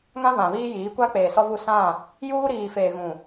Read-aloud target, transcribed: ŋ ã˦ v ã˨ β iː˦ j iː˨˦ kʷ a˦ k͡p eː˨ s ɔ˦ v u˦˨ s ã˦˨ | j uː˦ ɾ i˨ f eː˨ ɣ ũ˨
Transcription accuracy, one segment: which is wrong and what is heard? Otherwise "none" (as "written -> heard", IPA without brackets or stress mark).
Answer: i˨ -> iː˨